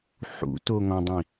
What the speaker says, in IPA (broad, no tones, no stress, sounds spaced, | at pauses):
ħ ṵ t o ŋ ɔ̃ dˤ ĩ